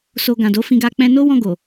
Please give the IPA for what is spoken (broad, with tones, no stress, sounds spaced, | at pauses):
s o˧ ɡ ã˨ d o˨˦ f ĩ˧ ɡ a˧ k͡p ɛ̃˧ n o˦ w ɔ̃˦˨ ɡ o˨